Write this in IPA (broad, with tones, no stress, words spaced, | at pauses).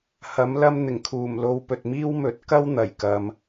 hɐ˨˥mlɐ˥m n̪ɪ˨˩ŋkʰuː˨˩mlo˧w pɵ˨t̚miː˥wmɵ˨˥t̚ kɐ˥w n̪ɐ˨˩jkɐ˨m